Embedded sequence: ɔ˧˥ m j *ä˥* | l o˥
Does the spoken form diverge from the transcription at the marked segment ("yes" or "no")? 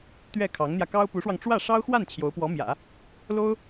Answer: yes